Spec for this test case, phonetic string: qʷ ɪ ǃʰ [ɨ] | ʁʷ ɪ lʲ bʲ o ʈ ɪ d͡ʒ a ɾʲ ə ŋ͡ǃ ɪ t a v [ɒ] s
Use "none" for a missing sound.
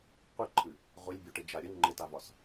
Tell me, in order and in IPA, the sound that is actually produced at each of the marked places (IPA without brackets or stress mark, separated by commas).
ɨ, ɒ